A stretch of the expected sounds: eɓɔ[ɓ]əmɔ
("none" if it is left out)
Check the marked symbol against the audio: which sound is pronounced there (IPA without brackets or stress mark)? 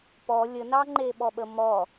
ɓ